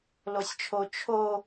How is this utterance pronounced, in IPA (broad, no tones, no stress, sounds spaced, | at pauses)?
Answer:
l o sʲ t͡ʃʰ o t͡ʃʰ o